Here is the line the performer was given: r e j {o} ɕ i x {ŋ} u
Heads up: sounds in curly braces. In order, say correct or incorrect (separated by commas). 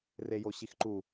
correct, incorrect